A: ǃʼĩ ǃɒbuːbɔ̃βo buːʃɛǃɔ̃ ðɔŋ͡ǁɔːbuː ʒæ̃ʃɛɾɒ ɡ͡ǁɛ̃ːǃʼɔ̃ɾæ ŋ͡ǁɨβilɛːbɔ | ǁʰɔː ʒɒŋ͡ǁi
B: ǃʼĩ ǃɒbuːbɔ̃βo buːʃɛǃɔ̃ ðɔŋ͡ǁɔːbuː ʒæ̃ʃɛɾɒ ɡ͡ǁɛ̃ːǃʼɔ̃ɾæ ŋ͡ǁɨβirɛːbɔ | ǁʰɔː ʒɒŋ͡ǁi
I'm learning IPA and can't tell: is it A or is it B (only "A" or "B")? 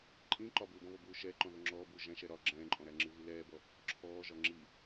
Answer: A